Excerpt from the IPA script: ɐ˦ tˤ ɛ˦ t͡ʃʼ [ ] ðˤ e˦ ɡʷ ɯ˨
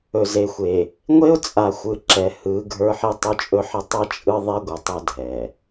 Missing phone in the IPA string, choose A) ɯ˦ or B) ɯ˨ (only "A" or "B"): A